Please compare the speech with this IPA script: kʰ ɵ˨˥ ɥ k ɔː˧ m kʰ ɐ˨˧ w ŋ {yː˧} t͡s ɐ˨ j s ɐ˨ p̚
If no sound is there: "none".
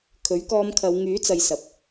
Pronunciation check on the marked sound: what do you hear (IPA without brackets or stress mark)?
yː˨˥